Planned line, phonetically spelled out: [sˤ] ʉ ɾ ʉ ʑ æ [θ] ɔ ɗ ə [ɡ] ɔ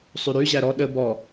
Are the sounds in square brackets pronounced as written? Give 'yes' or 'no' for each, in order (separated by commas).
yes, no, no